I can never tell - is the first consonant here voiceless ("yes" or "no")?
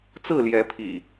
yes